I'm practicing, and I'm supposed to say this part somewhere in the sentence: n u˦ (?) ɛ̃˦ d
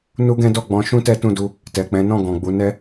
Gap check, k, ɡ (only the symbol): ɡ